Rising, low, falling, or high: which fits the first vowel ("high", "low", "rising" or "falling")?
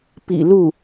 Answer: low